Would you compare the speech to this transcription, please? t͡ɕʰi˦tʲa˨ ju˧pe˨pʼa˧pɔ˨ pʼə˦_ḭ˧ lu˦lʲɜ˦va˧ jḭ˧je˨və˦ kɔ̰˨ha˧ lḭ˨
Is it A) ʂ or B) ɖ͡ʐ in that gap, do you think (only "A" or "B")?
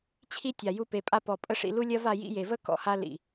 A